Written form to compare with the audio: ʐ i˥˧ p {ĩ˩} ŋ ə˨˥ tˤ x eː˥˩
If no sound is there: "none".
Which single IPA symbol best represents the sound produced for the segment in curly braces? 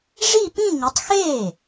ĩ˥˧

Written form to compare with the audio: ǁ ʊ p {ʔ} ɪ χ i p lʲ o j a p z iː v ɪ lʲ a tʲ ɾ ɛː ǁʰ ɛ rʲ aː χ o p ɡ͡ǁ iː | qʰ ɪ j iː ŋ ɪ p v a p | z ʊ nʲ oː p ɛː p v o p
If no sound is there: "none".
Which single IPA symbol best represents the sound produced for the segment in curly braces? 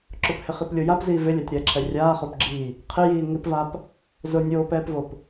h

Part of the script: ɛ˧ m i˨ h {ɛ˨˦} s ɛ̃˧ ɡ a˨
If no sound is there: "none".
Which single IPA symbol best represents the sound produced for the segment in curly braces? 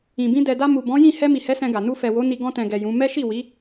ɛ˨˦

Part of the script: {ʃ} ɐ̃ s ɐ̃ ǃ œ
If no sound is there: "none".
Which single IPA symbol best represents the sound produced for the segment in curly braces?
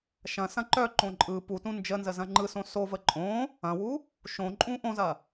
ʃ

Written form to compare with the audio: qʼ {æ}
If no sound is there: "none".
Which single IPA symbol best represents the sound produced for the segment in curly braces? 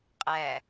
æ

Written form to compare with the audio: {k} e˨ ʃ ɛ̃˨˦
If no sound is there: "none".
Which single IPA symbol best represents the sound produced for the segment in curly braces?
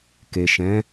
k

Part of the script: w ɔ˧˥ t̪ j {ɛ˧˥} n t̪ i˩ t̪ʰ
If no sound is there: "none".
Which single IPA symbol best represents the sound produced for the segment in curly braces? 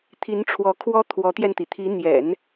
ɛ˧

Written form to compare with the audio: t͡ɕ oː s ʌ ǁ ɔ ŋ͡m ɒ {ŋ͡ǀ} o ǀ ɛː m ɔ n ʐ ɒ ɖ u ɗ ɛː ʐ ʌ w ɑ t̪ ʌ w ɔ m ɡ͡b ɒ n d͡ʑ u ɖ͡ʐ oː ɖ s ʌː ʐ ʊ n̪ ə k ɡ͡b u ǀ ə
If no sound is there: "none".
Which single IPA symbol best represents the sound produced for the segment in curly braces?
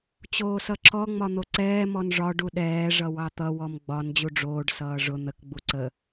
n̪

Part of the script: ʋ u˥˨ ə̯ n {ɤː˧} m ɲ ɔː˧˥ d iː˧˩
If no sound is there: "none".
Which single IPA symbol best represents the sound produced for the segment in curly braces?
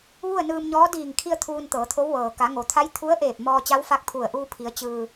ɯː˧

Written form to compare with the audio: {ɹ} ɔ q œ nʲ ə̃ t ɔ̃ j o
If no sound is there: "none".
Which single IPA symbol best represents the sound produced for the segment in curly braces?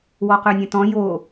w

